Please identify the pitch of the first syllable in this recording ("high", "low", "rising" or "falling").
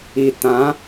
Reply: low